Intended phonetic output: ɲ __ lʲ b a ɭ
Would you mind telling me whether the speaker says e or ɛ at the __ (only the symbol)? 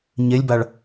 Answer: e